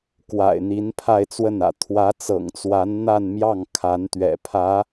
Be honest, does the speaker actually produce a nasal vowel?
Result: no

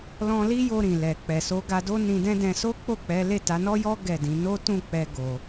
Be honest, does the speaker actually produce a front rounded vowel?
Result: no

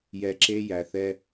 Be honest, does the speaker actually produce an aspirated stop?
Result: no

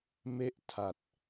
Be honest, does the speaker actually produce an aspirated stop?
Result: yes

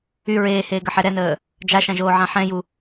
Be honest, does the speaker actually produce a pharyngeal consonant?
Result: yes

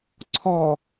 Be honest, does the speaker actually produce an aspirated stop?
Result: yes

